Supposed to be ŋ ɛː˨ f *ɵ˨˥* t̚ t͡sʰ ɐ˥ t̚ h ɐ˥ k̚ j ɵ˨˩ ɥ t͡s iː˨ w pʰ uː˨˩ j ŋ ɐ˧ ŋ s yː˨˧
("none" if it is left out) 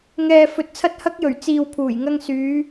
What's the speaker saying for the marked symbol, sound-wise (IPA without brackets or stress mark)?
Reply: ɵ˨˥